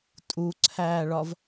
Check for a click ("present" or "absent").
present